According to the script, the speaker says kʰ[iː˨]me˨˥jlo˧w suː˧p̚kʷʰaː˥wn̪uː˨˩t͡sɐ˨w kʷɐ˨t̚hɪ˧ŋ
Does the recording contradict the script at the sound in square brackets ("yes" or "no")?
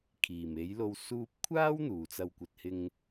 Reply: yes